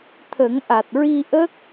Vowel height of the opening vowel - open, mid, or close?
mid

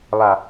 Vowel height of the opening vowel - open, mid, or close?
open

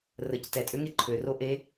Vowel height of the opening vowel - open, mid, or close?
mid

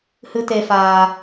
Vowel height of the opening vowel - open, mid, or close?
close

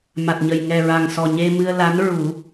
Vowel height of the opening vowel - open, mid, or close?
open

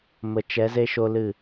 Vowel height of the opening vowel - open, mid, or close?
mid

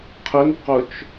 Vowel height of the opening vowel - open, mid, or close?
close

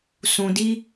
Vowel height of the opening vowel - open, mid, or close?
close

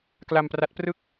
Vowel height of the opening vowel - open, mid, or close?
open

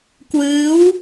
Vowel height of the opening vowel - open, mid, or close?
close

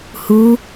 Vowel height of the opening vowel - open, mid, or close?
close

